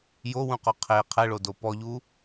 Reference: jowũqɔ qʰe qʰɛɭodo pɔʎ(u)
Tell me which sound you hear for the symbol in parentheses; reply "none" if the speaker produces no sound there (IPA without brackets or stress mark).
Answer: u